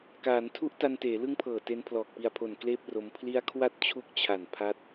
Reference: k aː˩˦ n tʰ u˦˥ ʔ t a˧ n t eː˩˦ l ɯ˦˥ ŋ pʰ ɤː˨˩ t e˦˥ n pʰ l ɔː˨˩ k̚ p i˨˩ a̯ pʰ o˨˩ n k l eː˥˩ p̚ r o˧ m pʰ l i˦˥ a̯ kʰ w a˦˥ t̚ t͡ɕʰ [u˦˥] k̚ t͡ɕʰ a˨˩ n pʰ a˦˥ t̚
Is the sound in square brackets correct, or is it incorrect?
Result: correct